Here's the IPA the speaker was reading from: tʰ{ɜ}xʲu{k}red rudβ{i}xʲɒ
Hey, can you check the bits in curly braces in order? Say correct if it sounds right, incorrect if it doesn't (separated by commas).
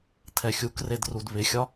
incorrect, correct, incorrect